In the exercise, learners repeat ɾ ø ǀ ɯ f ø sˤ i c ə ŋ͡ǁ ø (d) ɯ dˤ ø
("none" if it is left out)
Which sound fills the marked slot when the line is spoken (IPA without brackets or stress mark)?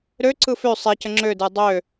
d